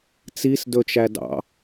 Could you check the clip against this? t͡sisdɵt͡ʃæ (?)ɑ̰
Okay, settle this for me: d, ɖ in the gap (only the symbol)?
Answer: d